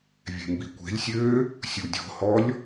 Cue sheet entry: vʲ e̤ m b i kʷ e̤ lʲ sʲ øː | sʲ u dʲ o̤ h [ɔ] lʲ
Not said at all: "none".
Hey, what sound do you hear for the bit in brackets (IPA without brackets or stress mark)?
ɔ